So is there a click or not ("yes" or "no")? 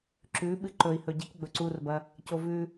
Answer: yes